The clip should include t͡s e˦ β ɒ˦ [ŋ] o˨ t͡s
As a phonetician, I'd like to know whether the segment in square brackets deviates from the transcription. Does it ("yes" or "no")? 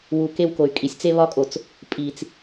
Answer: yes